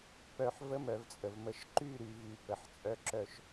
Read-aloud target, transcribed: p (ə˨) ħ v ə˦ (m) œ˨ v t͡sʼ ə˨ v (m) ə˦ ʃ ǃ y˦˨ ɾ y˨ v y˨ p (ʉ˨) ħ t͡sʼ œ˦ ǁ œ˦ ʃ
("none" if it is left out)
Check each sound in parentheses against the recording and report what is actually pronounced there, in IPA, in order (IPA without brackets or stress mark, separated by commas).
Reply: œ˨, m, m, ə˨